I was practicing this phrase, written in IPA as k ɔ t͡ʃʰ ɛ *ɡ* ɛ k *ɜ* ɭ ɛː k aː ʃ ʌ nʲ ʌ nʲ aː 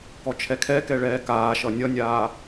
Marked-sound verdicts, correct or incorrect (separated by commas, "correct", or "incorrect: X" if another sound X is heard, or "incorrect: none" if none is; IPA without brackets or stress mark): incorrect: kʰ, incorrect: ɛ